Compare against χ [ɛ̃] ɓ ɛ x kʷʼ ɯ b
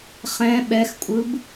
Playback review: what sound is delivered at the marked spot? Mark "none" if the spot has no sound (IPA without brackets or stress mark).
ɛ̃